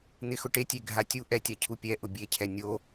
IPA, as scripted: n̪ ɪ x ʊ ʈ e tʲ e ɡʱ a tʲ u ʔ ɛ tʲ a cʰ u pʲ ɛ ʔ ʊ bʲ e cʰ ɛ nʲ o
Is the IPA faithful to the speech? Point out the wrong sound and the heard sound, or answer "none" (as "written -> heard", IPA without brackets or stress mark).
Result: none